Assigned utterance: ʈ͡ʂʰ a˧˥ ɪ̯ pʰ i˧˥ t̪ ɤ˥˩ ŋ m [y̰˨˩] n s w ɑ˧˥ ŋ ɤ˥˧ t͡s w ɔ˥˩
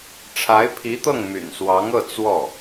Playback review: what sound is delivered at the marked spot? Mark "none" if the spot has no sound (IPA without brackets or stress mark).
y̰˨˩